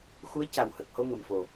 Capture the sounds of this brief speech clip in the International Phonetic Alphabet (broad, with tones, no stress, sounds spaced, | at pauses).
x u˧˥ ə̯ c a˨˩ w h ə˨˩ k̚ h o˧ ŋ ə˨˩ m f o˨˩